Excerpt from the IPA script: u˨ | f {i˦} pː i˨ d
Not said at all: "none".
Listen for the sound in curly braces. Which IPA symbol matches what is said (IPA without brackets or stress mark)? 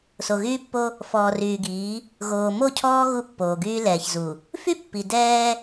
y˦